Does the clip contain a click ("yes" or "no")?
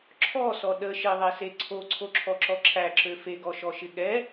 yes